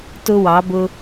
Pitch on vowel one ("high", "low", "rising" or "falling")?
high